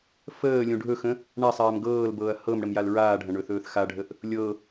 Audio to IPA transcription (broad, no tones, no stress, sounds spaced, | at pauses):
f əː lʲ õ ɖʱ ɵ x ə̃ | ɳ a sˤ aː m ɡ ɤː l b ɤː ɐ̯ h ɤ m ɽ ə m j a l ɹ aː ɖʱ ɐ̃ ɳ ɵ θ ɵː θ x a ɖʱ ə ʔ | lʲ ɤ